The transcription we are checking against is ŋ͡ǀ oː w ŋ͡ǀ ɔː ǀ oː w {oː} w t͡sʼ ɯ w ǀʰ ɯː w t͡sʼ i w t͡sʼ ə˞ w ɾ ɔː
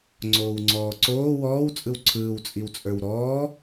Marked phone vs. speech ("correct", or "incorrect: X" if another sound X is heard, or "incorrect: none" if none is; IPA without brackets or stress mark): incorrect: ɔː